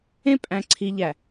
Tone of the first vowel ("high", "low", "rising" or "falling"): high